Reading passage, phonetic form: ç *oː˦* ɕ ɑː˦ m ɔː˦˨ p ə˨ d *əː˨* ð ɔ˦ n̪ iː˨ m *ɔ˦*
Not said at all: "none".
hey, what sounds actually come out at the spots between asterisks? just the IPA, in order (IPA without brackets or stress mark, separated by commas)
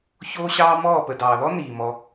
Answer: oː˦, ɑː˨, ɔ˧